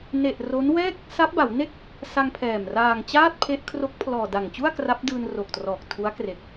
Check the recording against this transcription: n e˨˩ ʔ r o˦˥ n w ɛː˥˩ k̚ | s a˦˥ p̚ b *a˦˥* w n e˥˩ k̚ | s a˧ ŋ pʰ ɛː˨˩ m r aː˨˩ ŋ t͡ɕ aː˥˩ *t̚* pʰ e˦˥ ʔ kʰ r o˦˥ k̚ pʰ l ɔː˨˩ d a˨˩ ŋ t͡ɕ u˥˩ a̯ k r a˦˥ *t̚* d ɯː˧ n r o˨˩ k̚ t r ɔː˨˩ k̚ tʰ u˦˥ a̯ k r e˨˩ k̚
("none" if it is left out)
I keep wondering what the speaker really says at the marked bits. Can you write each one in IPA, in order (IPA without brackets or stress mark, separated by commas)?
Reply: a˩˦, t̚, p̚